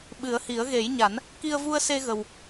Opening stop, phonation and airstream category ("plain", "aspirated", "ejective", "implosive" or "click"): implosive